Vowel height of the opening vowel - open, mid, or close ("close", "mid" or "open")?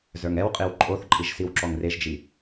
mid